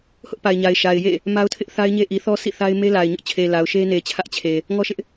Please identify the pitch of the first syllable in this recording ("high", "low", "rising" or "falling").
high